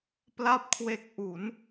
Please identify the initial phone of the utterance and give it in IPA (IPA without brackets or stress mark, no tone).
p